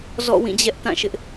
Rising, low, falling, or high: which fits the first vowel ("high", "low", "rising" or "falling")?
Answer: falling